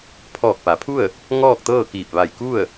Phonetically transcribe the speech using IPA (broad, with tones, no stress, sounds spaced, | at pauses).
pʰ ɔː˧˩ k̚ p a˩˧ pʰ u˥˨ ə̯ | ŋ ɔː˥˨ k̚ t̪ ɤː˥˨ k iː˧˩ p̚ ʋ a˧˩ j k u˥˨ ə̯